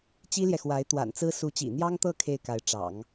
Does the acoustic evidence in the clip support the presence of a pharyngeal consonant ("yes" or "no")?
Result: no